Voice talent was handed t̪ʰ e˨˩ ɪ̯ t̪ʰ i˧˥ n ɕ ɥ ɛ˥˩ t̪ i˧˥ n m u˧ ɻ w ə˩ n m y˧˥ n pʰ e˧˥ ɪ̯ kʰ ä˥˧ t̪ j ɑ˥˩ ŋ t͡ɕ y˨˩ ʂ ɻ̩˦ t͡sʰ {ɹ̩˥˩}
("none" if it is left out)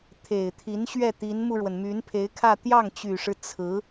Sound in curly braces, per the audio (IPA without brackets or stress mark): ɹ̩˧˥